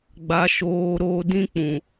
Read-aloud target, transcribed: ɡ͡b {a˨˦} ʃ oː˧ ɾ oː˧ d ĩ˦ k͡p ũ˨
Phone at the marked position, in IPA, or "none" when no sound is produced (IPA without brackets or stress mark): a˨˦